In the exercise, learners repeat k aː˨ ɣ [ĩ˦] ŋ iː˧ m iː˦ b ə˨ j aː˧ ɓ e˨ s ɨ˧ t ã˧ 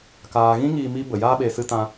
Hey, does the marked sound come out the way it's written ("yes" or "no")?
yes